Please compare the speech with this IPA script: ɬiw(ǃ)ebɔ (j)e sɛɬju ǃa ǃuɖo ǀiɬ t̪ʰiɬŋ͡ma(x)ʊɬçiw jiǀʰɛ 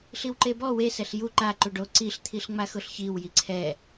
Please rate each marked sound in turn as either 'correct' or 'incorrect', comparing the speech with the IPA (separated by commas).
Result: correct, incorrect, correct